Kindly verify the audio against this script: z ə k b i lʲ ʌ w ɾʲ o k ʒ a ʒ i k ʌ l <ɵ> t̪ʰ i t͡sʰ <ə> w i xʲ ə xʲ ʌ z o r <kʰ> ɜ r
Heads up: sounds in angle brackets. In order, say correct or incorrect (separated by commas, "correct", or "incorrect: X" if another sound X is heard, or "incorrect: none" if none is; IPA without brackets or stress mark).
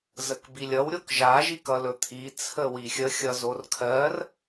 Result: correct, correct, correct